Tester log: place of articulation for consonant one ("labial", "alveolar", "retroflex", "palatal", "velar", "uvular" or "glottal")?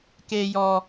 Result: velar